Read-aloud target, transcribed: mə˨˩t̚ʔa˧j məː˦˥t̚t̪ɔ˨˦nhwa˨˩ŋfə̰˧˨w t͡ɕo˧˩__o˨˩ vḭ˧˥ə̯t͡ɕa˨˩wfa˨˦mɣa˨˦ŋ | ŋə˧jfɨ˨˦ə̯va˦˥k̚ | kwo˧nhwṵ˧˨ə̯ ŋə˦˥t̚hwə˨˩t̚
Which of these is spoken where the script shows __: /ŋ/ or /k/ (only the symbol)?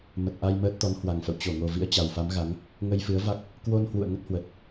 ŋ